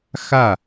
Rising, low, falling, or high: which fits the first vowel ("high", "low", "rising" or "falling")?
falling